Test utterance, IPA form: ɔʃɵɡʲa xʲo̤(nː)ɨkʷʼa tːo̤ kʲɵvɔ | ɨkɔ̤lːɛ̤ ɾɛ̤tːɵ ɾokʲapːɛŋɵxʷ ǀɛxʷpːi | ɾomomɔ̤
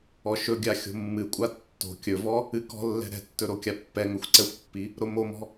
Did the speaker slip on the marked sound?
yes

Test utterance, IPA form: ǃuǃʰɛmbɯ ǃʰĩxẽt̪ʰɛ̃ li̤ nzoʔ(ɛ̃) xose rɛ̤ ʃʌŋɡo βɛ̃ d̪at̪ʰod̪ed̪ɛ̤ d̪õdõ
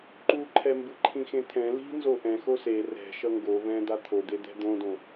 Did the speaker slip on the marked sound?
no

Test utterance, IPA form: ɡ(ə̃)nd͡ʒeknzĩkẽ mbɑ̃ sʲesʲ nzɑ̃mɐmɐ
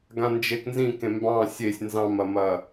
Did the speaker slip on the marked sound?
yes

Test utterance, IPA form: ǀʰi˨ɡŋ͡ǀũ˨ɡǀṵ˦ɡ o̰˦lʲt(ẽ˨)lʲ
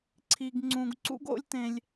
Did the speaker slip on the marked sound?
no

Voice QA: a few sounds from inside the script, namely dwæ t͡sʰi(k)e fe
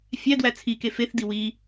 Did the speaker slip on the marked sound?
no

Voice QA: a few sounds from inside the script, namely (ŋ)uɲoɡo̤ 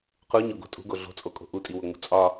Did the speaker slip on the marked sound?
yes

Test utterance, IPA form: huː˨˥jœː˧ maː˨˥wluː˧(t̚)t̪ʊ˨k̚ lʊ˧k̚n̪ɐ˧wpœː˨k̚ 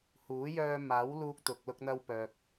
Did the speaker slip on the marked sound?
yes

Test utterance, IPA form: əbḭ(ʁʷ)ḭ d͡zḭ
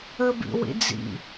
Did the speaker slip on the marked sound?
yes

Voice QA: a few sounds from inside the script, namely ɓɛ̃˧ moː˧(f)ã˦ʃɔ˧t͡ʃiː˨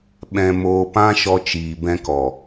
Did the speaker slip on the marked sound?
yes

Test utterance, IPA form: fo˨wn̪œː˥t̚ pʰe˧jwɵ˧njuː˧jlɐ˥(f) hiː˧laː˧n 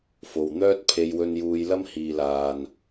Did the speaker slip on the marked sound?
yes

